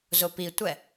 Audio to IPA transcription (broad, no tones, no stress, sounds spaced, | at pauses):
z ʊ p i tʷ ɛ